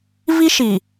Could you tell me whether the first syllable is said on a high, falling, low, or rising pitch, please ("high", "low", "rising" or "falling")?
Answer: high